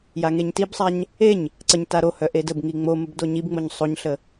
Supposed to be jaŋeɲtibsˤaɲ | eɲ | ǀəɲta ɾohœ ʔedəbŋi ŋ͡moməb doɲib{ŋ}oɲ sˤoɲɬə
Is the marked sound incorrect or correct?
incorrect